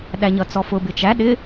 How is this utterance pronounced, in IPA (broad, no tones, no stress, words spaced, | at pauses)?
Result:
ɗæɲʌt͡sɔfʊ bɪt͡ʃæ ɗɪ